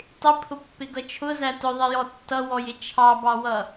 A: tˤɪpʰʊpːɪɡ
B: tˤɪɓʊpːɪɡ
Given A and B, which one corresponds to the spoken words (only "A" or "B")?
A